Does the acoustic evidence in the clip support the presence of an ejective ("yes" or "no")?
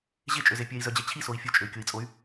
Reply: yes